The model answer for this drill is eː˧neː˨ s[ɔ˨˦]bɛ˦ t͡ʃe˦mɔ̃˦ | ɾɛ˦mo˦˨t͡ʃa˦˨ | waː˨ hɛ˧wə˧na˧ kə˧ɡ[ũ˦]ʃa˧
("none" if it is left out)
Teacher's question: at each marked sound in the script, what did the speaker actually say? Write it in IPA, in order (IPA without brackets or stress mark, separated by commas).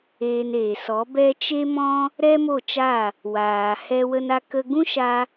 ɔ˨˦, ũ˦